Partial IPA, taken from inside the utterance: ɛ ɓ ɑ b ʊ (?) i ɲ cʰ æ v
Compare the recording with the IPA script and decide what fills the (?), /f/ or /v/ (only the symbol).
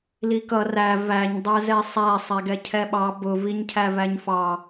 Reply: v